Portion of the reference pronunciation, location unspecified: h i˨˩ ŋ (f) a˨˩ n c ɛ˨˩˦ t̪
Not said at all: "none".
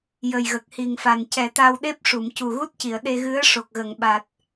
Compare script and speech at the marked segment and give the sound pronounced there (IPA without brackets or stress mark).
f